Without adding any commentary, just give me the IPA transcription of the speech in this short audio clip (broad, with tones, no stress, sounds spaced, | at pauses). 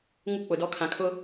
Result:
ŋ u˦ k͡p ʊ˨ d ɔ˦ kʰ ã˨ kʰ ʊ˦